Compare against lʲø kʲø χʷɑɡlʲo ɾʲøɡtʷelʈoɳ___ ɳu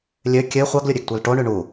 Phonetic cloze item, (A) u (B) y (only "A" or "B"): B